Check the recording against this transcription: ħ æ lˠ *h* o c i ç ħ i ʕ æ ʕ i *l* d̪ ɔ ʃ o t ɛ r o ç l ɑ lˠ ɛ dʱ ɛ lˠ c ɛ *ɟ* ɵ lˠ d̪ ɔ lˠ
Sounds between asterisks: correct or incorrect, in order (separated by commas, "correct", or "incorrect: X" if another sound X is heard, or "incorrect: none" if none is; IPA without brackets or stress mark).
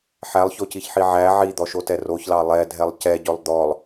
incorrect: ç, incorrect: none, correct